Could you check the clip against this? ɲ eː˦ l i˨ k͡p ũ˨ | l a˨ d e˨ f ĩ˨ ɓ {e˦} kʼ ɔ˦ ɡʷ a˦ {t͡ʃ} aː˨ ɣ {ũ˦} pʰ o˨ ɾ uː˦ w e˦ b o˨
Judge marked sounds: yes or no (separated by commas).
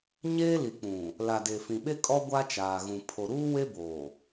yes, yes, no